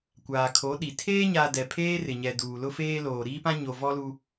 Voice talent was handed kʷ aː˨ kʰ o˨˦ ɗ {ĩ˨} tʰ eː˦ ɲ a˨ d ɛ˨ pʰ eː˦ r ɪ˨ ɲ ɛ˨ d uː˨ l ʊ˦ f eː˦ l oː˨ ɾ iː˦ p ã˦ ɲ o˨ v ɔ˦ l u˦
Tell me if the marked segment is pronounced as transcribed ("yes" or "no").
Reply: no